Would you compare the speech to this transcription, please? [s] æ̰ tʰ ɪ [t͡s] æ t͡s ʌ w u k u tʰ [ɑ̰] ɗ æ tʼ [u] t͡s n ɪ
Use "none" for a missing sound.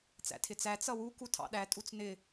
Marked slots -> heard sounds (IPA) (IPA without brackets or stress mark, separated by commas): t͡s, t͡s, ɑ̰, u